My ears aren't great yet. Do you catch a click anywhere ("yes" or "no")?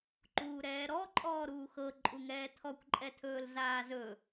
yes